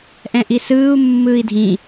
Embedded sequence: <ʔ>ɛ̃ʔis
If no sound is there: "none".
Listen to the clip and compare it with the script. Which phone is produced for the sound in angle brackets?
ʔ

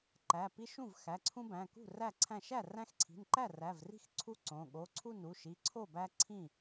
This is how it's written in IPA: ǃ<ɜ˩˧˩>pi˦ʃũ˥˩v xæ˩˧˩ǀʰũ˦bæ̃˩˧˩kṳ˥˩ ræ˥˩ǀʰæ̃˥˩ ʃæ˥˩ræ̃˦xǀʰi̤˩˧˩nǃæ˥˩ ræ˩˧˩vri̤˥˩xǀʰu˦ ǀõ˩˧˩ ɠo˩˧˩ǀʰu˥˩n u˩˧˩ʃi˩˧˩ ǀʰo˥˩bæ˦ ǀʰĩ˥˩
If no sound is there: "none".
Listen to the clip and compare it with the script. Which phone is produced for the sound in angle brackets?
æ˩˧˩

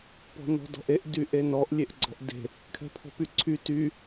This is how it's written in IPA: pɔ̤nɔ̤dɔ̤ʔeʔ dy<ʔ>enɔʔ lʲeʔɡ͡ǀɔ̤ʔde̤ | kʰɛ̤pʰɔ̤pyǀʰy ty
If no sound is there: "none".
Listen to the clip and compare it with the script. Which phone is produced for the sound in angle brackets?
ʔ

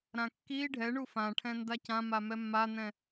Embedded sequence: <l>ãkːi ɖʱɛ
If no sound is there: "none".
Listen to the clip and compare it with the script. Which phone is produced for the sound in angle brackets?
ɾ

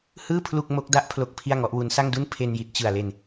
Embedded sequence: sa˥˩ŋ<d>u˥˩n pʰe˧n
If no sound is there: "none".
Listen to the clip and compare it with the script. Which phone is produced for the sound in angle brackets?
d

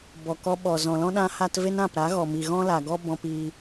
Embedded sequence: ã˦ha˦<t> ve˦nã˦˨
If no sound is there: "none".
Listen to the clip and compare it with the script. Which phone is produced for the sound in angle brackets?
t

